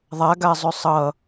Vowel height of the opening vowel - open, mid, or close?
open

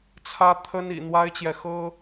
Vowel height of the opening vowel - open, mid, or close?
open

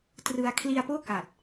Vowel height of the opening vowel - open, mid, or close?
close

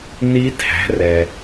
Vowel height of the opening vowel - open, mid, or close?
close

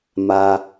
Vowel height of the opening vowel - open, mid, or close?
open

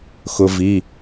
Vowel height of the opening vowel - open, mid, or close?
close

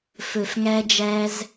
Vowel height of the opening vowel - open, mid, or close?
mid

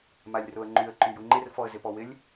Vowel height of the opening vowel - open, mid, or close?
open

